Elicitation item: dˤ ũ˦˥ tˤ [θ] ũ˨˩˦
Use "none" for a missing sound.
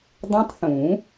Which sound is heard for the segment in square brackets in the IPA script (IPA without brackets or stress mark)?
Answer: θ